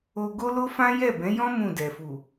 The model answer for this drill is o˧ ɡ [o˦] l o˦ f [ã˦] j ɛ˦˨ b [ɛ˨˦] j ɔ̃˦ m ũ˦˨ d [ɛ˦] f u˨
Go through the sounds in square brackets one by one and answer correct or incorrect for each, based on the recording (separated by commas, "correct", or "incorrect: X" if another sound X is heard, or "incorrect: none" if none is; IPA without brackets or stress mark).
correct, correct, incorrect: ɛ̃˨˦, incorrect: ɛ˨